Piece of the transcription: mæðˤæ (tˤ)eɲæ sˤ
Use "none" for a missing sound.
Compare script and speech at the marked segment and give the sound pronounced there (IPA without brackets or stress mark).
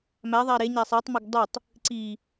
ɾ